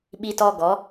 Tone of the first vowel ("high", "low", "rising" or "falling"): high